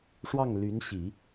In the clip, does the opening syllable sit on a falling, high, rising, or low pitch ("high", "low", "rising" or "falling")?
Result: falling